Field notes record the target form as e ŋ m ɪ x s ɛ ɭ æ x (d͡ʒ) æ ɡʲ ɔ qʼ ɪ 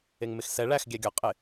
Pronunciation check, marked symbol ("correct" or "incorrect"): incorrect